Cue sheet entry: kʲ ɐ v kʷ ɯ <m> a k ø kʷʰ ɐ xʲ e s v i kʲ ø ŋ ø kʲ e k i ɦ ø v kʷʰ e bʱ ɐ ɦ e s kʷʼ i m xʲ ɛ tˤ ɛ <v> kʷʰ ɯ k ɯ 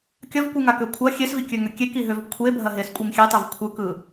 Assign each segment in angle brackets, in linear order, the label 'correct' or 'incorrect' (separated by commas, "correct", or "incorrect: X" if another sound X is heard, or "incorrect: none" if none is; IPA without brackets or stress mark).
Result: incorrect: ŋ, correct